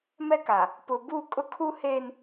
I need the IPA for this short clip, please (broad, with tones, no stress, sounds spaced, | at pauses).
m ɛ˦ k a˨ | p ʊ˨ b u˦˨ kʼ ʊ˦ kʰ u˦ h eː˦ n